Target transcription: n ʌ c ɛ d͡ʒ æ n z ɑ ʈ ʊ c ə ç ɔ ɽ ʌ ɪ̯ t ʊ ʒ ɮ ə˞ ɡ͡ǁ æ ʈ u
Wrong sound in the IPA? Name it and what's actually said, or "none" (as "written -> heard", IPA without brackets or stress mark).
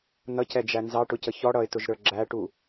ɮ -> ɾ